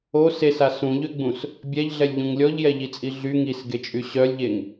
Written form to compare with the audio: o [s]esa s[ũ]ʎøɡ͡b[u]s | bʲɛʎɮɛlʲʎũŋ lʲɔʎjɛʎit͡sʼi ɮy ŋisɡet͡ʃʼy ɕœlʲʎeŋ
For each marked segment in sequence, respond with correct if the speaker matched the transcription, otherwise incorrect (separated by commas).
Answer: correct, correct, incorrect